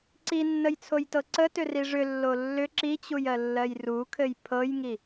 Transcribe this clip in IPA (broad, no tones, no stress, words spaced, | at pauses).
ǀinːəjt͡sʰojtɤ ǀətʏri ʐʏlːo lːʏ ǁit͡ɕujɜlːɜj rukʰɘj pʰɤjŋi